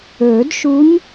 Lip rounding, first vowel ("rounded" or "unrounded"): rounded